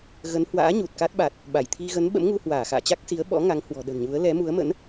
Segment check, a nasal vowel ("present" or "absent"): absent